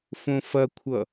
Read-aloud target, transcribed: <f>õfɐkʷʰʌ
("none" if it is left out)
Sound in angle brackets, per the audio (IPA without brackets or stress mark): f